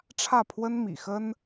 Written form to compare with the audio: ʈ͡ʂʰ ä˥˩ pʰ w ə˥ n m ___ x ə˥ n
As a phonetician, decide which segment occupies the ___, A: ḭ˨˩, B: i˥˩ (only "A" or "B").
A